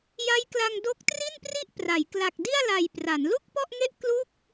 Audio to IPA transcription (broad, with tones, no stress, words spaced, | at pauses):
ja˦˥jkla˧ŋdo˦˥k̚ tri˥˩npri˥˩ʔpra˩˦j kla˨˩k̚di˥˩a̯la˨˩j pra˩˦nlu˥˩k̚pɔ˥˩ʔŋe˥˩ʔ klu˥˩k̚